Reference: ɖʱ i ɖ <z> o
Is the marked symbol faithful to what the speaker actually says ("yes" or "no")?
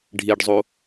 no